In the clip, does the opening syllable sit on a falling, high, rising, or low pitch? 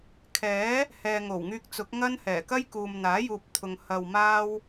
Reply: rising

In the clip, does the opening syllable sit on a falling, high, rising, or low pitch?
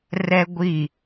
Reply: high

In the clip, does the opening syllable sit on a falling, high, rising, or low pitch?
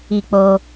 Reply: falling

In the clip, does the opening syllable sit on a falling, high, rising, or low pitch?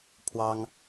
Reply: high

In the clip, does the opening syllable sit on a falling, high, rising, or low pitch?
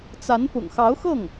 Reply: rising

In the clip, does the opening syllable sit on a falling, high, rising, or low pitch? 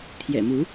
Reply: low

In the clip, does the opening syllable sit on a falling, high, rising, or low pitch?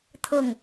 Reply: falling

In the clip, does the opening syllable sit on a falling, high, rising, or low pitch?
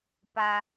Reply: high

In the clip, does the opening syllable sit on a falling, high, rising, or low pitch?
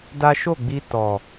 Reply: high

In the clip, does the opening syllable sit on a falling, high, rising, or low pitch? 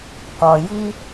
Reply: low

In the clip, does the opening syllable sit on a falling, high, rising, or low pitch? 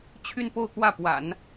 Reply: falling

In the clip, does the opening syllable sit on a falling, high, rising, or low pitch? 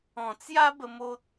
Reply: low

